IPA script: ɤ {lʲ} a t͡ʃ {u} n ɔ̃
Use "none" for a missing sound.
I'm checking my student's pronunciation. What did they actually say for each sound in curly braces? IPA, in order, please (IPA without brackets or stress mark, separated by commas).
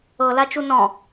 l, u